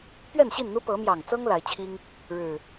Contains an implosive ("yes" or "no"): no